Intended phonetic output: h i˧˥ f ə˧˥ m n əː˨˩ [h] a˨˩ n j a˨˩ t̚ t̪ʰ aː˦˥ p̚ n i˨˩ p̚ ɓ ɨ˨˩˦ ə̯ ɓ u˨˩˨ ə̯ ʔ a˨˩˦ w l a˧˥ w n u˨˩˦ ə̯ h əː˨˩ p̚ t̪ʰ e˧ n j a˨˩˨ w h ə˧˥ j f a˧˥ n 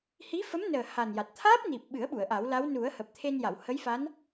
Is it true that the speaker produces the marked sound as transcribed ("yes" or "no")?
yes